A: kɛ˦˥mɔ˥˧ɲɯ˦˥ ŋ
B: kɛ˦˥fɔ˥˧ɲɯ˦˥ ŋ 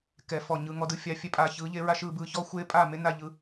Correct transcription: B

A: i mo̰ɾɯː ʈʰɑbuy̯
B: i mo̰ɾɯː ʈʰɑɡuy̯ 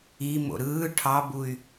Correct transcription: A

